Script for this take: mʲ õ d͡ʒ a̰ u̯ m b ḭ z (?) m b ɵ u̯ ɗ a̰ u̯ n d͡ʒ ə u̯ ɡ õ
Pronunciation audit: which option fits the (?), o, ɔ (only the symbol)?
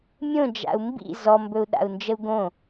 ɔ